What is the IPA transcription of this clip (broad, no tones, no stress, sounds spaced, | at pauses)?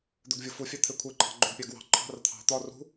d̪ œ ɡ vʲ o f u fʲ ɑ t̪ʰ e kʷʰ e ǃʰ ɑ̤ ɡ͡ǃ œ ɡ pʲ ɑ ɡ w ɑ̤ ǃʰ ɑ̤ r t̪ʰ ɑ̤ t̪ ɒ r ṳ